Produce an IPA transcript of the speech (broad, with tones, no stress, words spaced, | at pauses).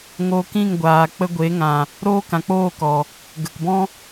ŋo˧ kĩ˦˨ŋɡʷaː˨ k͡pə˧ɡʷe˨˦ŋã˨ | ɾoː˦kã˨k͡poː˦˨ kɔ˨ | ɡə˨kbɔ̃˦